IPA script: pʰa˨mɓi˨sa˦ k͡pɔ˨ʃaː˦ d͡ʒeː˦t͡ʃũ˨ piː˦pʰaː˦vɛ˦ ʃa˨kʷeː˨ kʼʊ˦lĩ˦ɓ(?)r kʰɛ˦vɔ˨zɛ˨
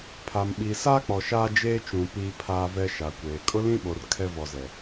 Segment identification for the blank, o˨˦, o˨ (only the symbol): o˨